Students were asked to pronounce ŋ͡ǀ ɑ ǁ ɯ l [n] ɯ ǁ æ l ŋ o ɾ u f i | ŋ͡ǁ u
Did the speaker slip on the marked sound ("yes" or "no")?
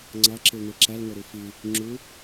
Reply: no